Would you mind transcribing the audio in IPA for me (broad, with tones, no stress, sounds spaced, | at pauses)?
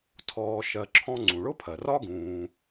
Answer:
tʰ ɔː˨ ʃ ɜ˨ ǁʰ ɔ̃˦ ŋ͡ǀ ũ˩ ɭ ʊ˥ pʰ ɜ˩ r ɒ˥ ɡ ũː˨